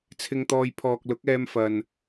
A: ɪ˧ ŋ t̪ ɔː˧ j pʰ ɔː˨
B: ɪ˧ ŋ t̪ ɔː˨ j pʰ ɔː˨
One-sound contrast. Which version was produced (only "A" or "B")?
A